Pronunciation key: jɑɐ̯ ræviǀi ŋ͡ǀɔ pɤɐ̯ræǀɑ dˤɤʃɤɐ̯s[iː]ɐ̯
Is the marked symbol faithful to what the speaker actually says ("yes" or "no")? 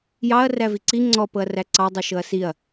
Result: no